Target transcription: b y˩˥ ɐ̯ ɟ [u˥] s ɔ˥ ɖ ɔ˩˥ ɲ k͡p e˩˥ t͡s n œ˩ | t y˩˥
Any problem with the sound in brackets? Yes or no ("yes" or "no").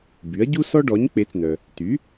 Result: no